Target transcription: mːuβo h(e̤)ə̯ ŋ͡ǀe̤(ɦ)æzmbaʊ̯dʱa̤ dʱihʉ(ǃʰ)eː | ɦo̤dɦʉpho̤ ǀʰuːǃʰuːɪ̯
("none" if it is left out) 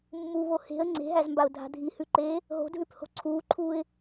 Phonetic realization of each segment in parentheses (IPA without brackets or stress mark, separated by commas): e̤, ɦ, ǃ